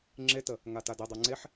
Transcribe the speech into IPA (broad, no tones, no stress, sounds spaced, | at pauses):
ŋ͡ǁ e t ə | ŋ a t a d i dˤ o ŋ͡ǀ e ħ